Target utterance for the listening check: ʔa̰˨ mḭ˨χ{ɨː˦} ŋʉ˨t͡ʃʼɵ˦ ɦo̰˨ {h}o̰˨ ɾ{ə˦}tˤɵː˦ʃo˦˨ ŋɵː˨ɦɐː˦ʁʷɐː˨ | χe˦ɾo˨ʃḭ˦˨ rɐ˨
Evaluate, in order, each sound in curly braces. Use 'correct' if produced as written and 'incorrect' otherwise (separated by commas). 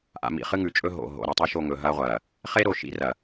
incorrect, incorrect, incorrect